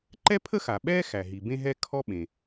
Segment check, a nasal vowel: present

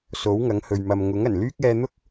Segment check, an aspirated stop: absent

